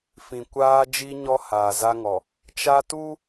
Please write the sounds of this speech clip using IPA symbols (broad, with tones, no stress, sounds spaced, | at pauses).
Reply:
f ĩ˨ kʷ aː˦ d͡ʒ i˦ ɲ ɔ˦ h aː˨ z a˦ ŋ ɔ˨ | t͡ʃ a˦ t u˦